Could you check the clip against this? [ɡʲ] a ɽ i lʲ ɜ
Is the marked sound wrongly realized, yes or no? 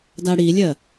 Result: yes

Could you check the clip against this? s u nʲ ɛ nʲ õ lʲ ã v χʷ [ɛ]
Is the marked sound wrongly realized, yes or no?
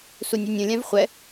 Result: no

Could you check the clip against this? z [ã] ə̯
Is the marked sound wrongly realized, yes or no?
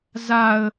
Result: yes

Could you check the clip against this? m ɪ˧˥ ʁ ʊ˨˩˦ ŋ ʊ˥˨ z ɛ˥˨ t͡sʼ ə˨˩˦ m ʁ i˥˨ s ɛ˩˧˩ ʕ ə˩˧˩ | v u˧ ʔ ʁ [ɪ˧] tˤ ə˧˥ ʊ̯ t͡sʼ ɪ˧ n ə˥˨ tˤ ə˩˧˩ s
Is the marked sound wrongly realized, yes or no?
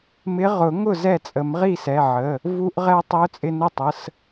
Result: yes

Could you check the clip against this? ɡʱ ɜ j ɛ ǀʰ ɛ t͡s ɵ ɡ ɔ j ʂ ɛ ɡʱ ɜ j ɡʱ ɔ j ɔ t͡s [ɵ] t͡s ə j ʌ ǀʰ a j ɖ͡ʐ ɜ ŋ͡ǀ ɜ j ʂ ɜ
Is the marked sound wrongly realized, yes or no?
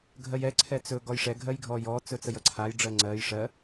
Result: no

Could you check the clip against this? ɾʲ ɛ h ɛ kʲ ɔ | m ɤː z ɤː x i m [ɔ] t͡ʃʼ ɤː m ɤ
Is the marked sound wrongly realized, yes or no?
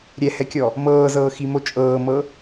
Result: yes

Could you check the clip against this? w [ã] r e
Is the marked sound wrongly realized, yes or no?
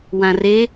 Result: no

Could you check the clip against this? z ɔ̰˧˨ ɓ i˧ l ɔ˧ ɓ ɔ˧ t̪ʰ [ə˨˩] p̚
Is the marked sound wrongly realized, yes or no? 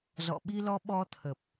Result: no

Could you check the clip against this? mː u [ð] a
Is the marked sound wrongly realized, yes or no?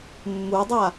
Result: yes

